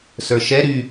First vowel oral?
yes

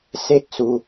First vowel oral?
yes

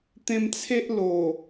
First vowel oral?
no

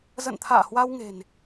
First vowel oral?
yes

